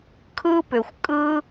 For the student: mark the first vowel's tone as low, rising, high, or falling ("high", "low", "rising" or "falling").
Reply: high